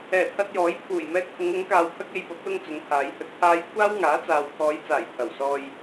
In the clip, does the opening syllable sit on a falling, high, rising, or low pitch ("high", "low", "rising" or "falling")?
low